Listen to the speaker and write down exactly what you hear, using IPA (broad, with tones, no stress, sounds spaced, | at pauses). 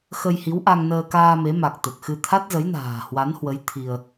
x ə˧ j h i˨˦ w ʔ a˧ ŋ n əː˧ k aː˧ m e˨˦ m a˨˩ k̚ t̪ ə˨˩ t̚ x ɨ˧ t̪ʰ a˦˥ t̚ z ə˨˦ j n a̤ː˨˩ h w a˨˦ n h w ə˨˦ j t̪ʰ i˧ ə̯